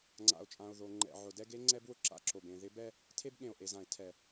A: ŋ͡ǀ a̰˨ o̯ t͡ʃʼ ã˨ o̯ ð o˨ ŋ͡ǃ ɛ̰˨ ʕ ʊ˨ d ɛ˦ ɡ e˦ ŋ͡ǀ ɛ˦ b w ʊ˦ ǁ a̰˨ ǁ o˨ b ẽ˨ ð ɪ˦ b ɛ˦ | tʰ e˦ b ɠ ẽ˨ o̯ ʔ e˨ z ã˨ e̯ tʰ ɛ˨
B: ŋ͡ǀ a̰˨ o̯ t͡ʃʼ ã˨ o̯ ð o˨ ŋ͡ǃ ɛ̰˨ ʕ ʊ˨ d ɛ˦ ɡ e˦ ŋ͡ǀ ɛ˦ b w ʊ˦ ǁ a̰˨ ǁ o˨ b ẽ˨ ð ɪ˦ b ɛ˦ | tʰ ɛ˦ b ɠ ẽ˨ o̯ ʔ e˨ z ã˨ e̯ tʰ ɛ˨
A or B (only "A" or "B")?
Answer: A